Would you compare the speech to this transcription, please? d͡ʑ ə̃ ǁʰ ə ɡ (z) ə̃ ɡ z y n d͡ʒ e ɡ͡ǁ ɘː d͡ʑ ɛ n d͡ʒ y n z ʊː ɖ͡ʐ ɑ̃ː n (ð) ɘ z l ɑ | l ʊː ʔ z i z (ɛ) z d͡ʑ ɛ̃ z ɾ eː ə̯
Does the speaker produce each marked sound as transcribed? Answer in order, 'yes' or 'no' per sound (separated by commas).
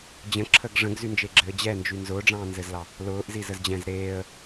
no, no, no